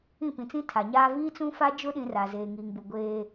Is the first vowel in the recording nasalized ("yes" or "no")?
yes